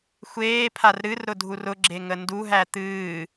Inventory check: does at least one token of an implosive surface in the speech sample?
no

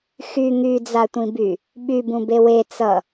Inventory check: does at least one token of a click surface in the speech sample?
no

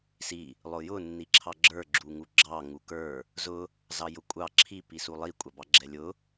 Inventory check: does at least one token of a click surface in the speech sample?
yes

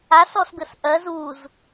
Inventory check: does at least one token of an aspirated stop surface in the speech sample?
no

